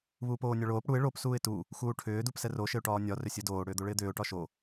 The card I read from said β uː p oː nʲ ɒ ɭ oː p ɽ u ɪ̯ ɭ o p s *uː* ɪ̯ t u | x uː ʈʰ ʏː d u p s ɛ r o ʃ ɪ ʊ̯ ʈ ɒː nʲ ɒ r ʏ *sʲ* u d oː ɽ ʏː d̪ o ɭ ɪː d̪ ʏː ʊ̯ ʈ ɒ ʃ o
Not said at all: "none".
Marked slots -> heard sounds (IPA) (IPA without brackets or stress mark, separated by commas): uː, sʲ